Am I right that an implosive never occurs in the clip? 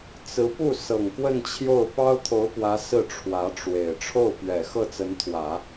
yes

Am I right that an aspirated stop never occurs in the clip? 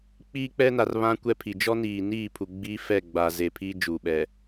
no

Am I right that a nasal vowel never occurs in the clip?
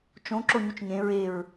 no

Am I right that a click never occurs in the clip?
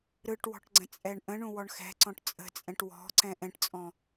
no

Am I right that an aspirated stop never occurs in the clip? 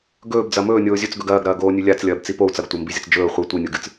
yes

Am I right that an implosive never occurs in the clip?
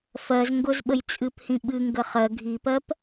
no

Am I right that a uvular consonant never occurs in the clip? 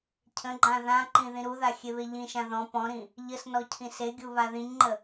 yes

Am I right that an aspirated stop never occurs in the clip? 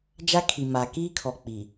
no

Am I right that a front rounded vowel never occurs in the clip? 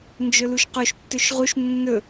yes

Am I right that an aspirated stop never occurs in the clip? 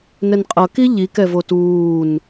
yes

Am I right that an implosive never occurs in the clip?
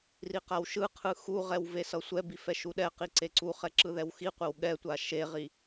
no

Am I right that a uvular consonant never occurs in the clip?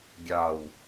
yes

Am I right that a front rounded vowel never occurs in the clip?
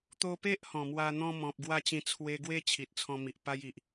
yes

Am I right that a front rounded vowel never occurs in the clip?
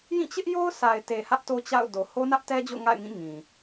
yes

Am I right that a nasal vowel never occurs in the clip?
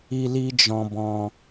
no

